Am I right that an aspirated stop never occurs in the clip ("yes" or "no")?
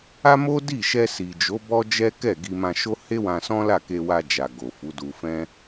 yes